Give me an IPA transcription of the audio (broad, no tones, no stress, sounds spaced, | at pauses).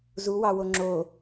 z u w ɑ w o ŋ͡ǁ o